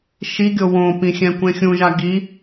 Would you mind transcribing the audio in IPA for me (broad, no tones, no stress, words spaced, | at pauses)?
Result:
ʃiɡʲo wõpĩ xʲɛ̃kʷẽxʲũʒa ɡi